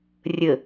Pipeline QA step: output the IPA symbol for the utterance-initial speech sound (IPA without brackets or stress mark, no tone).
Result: rʲ